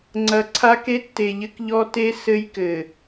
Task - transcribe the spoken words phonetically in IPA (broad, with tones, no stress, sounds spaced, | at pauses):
ŋ͡ǀ ɐ˨ ǀʰ a˦ k e˦ tː e˨ ʎ ɘ˦ k ʎ ɔ˦ t e˦ s ɘ˦ j k ɘ˨